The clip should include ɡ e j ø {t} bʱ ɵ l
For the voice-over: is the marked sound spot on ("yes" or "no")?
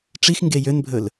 no